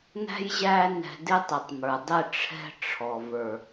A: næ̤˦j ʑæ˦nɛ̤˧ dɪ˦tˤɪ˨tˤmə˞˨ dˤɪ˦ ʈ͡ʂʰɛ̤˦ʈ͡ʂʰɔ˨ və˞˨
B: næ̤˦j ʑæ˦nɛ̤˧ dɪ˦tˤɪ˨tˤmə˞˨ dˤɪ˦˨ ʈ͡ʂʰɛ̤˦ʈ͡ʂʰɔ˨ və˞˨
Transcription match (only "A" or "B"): B